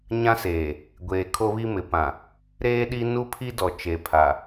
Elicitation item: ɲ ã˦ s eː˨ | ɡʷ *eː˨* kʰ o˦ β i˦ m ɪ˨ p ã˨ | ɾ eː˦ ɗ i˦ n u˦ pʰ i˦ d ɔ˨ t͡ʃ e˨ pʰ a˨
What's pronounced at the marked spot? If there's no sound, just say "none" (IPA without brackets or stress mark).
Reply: eː˨